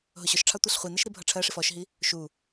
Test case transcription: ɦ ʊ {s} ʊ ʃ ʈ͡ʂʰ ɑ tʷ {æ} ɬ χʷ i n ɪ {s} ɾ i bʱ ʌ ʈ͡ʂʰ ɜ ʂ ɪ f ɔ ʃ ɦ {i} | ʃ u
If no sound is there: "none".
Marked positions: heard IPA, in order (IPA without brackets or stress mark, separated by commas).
ɕ, ɛ, ʃ, i